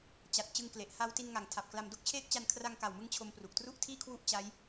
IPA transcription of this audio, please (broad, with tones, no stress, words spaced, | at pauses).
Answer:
t͡ɕa˨˩t̚ t͡ɕɯ˦˥ŋkle˨˩ʔ ha˦˥w ti˧nŋa˩˦ŋ tʰa˨˩p̚kla˧m do˦˥k̚t͡ɕʰeː˦˥k̚t͡ɕa˧n kʰra˧ŋka˨˩wmɯ˧ŋ t͡ɕʰo˧m pru˨˩k̚tru˥˩ʔtʰiː˥˩ kʰwu˥˩ʔt͡ɕa˦˥j